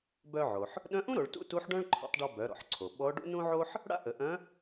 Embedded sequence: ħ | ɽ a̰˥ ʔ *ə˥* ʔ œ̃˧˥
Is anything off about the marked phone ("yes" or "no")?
yes